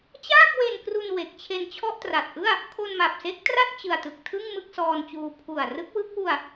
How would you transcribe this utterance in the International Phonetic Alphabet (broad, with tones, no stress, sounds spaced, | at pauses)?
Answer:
t͡ɕ aː˥˩ k̚ w e˧ n k r u˧ n w e˨˩ k̚ t͡ɕʰ e˧ n t͡ɕʰ ɔ˥˩ ʔ t r a˨˩ t̚ ʔ ɯ˥˩ a̯ | kʰ o˧ n m a˨˩ p̚ s e˦˥ k̚ t r a˥˩ t̚ t͡ɕ ɯ˨˩ a̯ t ɯ˨˩ k̚ tʰ ɯ˥˩ ŋ m ɯ˥˩ k̚ s ɔː˧ n t͡ɕ uː˧ pʰ u˨˩ a̯ r ɯ˦˥ k̚ w ɯ˦˥ k̚ w u˧ a̯